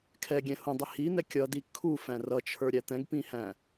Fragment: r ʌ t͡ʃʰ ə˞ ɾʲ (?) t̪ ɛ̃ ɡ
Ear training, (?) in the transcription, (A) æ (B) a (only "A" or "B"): A